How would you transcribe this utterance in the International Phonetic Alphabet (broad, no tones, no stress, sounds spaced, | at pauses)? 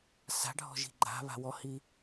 s a̤ ɖʱ ɔ̤ ʒ i̤ ɡ͡ǃ a̤ β a̤ w ɔ h i